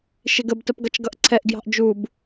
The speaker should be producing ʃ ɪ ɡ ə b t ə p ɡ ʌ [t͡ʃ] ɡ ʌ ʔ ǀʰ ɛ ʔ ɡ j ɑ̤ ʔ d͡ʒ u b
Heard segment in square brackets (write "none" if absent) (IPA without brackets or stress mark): t͡ʃ